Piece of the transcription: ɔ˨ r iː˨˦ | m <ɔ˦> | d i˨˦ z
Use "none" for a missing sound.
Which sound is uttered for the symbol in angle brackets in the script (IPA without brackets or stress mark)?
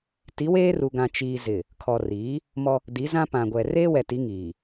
ɔ˦